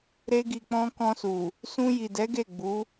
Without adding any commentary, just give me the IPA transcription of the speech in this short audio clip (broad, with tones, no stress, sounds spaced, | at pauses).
ɾ e˦ ɡ i˧ k͡p ɔ̃˦ k ɔ̃˧ s u˨ | s ũ˧ j i˨ d ɛ˨˦ ɡ e˦˨ ɡ͡b u˨˦